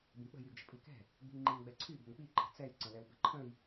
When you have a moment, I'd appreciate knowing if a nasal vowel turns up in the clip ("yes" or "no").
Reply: yes